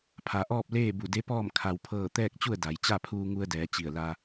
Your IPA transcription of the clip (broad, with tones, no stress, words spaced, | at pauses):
pʰa˩ʔɔː˥˨p̚leː˥˨ bu˧˩de˧˥pɔː˥˨m kʰa˧wpʰɤː˥˨ t̪ɛː˥˨k̚t͡ɕu˥˨ə̯ da˩˧j t͡ɕa˥˨pʰuː˧ŋu˧ə̯dɛː˩˧ t͡ɕi˧˩ə̯la˧